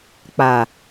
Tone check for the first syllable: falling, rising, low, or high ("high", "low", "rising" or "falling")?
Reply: low